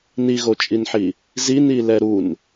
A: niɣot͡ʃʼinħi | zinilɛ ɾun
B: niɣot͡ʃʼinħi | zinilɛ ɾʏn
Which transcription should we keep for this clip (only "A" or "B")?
A